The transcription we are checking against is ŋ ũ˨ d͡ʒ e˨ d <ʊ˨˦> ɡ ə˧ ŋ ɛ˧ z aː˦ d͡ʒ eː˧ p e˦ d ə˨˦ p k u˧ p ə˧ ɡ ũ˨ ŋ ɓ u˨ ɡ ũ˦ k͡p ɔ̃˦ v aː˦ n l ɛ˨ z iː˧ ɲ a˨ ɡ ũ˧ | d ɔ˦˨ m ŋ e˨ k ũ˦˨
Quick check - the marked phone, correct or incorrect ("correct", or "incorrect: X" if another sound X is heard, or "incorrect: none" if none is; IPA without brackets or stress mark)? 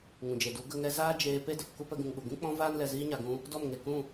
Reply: incorrect: u˨˦